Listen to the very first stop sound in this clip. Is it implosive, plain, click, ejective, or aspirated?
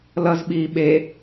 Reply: implosive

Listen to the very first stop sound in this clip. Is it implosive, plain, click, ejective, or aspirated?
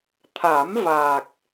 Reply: aspirated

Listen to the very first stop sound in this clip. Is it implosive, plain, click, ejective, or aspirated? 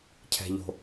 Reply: aspirated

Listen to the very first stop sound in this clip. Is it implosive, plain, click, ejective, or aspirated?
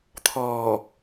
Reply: aspirated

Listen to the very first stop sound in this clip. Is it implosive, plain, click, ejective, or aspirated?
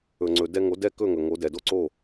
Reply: click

